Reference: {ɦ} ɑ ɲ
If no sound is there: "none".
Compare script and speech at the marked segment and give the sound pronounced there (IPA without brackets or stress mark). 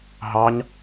ɦ